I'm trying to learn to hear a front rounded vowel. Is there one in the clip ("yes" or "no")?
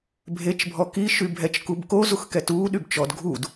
yes